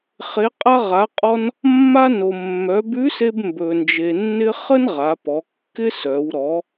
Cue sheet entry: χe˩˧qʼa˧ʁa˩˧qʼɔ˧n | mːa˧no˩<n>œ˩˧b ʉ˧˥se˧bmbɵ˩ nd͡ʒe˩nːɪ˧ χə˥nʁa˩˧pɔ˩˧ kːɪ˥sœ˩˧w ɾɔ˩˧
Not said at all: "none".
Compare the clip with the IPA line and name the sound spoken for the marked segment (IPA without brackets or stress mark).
mː